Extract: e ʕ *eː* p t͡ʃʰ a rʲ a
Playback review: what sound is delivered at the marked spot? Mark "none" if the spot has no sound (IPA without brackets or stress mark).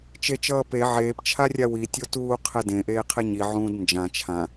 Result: eː